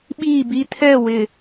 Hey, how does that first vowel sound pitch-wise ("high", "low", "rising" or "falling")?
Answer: falling